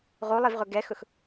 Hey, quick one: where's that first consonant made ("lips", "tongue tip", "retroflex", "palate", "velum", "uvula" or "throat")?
uvula